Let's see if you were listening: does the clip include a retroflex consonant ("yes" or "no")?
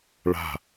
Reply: yes